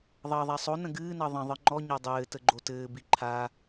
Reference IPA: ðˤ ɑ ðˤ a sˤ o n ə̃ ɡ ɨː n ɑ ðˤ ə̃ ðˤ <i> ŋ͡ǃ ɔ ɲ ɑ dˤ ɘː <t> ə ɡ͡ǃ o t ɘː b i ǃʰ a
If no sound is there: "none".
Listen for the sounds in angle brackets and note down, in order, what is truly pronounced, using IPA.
ɨ, t

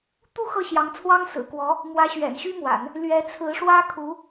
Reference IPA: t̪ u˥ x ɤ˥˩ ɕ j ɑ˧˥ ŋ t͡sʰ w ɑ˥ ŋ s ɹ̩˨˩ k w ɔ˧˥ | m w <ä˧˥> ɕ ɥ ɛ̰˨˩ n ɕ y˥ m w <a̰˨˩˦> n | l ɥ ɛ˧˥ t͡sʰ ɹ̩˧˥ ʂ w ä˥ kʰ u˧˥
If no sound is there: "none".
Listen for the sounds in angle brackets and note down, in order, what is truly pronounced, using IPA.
ä˧˥, a̰˨˩˦

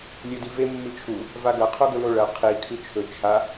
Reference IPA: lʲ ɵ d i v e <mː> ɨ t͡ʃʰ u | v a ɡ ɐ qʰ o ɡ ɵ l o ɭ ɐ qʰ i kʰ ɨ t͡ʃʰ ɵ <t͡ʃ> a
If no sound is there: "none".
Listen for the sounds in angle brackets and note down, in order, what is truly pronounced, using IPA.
mː, t͡ʃʰ

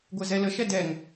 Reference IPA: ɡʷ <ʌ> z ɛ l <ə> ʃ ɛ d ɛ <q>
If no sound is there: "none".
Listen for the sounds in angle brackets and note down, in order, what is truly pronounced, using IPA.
ə, ə, ŋ

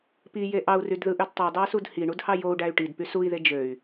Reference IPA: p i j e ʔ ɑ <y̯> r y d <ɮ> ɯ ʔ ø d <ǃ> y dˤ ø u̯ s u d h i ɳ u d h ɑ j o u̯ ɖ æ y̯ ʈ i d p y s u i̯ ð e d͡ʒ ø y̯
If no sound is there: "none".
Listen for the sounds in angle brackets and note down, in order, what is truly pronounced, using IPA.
u̯, ð, tˤ

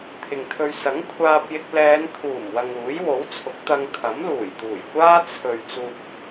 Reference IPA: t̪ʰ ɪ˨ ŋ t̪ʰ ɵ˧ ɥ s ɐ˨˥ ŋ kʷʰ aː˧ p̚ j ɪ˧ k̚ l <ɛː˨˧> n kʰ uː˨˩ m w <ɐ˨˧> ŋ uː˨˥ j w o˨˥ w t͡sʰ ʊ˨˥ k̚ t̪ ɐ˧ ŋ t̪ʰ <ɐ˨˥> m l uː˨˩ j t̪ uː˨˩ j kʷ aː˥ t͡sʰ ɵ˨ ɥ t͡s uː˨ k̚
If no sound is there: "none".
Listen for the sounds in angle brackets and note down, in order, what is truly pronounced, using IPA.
ɛː˨˧, ɐ˨, ɐ˨˥

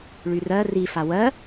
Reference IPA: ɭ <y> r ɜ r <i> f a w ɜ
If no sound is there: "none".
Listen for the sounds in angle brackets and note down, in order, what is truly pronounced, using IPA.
y, i

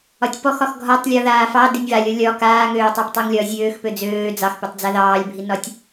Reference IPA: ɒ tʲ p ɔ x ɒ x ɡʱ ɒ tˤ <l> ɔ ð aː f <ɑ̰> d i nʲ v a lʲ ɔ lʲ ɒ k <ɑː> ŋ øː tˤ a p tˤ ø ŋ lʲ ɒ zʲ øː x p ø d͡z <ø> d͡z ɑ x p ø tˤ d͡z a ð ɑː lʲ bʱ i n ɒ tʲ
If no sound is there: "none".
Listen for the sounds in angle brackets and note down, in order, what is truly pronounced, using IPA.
lʲ, ɑ, aː, øː

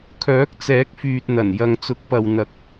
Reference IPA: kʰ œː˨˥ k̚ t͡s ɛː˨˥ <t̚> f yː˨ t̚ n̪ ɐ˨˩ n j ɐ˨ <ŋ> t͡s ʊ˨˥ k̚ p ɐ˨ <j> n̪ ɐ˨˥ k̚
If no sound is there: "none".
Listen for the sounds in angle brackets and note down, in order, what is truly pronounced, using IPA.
k̚, ŋ, w

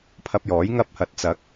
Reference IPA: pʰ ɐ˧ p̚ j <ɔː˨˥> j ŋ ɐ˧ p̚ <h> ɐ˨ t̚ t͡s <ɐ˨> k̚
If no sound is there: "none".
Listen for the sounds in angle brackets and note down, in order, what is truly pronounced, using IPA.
ɔː˨˥, h, ɐ˨˥

